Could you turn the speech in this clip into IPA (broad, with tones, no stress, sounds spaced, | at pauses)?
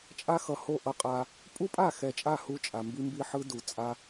t͡ʃʼ a˦ x ʌ˨ h o˦˨ ʔ ʌ˦ qʼ a˦ | pʼ u˦ pʼ a˦˨ x ɛ˨ t͡ʃʼ a˦˨ h u˦ t͡ʃʼ a˨ m b i˦ m b i˦ ħ ɯ˦ d u˨ t͡sʼ a˦